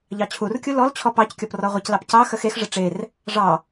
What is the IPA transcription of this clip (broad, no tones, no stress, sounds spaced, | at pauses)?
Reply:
ʎ ɑ t͡ɕʰ u r kʲ u l ɔ l t͡ɕʰ ɔ p ɑ c kʲ ɔ p r ɔ ʁʷ ə c l ɑ p c ɑ x ə x e x ʐ ə ʈ͡ʂ e r | ʐ ɑ